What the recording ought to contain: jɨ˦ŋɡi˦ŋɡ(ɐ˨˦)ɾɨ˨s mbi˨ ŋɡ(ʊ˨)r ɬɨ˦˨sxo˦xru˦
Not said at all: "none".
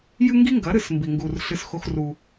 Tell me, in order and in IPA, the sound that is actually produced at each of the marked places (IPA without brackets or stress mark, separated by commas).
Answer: ɐ˨˦, u˨